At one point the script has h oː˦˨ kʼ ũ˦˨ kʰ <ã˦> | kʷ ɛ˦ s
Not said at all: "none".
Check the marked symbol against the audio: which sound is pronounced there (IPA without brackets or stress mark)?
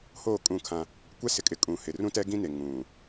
ã˦